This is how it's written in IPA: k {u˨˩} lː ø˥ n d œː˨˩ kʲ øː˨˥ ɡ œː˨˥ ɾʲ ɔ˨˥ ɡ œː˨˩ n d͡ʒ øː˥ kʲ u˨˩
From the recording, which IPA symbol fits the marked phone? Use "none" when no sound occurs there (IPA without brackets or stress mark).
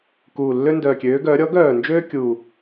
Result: uː˨˩